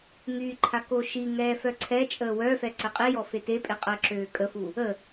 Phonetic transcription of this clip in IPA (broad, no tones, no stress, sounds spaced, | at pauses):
ŋ y ǃʰ a k o ʃ i ŋ ɛː f œ ǀʰ ɛ t͡ʃʼ əː w œ f ɛ ǀ ə qʼ i j ɔ f e t e pʼ e qʼ əː ǁ øː kʼ ə f u | ə